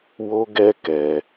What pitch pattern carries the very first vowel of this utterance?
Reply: high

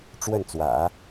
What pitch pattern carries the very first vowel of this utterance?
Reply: falling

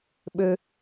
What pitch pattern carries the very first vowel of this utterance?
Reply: low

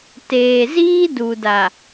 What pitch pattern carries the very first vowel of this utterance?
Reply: low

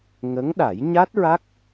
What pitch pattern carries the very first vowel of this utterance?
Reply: rising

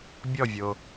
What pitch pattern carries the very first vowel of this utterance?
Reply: falling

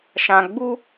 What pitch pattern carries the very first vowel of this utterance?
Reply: low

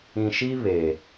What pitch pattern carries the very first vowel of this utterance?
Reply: low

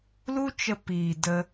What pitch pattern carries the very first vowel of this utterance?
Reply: high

